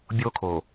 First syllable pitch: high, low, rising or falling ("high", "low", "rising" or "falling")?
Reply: high